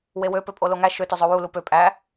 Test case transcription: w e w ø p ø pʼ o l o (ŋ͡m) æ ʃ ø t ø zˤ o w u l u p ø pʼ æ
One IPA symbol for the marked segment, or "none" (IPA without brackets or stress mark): ŋ